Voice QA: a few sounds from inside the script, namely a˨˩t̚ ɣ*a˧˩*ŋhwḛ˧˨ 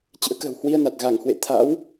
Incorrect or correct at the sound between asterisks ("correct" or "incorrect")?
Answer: correct